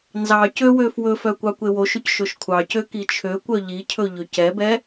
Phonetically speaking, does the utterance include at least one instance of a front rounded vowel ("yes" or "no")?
yes